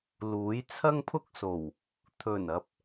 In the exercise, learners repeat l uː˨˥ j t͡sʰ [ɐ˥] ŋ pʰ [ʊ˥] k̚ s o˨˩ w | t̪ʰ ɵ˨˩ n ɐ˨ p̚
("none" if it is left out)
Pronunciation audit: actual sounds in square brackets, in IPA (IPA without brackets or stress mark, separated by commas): ɐ˥, ʊ˥